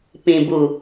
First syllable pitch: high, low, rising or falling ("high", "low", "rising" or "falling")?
low